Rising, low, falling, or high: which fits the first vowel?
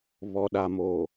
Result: low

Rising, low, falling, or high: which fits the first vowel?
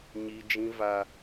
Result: high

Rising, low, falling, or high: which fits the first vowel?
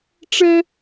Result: high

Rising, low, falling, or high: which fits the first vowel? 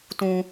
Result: high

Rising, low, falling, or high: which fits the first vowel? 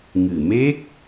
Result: low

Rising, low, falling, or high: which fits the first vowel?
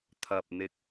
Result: low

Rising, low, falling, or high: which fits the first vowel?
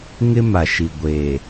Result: high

